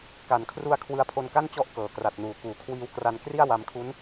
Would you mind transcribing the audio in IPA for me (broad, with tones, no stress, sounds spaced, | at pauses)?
k a˨˩ n kʰ r u˧ a̯ kʰ w ɯ˧ a̯ pʰ o˧ n k a˥˩ n t͡ɕ ɔ˦˥ ʔ k ɤː˨˩ k r a˨˩ t̚ n uː˩˦ k uː˨˩ kʰ w iː˧ w k r a˧ n k r i˥˩ a̯ w a˧ m kʰ u˦˥ n